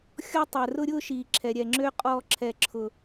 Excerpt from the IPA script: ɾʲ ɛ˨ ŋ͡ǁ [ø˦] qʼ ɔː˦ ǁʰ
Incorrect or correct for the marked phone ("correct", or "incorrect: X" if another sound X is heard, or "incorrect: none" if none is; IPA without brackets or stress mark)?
correct